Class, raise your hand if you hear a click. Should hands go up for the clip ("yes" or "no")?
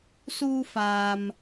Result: no